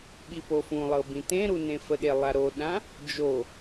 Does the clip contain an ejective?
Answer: no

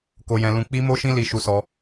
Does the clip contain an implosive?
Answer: no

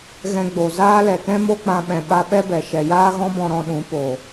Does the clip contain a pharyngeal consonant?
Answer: no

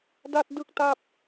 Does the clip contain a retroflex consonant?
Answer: no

